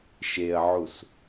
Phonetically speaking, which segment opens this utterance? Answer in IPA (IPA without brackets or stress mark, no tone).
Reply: ʃ